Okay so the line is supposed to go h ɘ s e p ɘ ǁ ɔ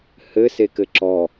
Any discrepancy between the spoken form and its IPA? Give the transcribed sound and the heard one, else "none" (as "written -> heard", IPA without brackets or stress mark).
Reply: p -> k